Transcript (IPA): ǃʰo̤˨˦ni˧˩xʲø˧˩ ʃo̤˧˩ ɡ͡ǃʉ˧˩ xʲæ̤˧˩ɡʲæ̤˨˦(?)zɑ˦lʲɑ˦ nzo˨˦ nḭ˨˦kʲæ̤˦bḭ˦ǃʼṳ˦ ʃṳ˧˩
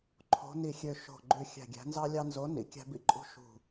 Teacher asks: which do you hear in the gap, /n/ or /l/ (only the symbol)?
n